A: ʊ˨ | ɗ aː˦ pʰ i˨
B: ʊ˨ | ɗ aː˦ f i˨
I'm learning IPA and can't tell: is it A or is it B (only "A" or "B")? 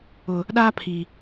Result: A